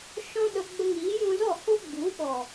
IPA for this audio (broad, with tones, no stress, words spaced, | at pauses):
ʃɔ̃˦ɗə˧ ɡ͡bə˧ŋiː˨˦jũ˧zɔ˦˨ ho˦ ɡ͡bu˨˦ɓɔ˨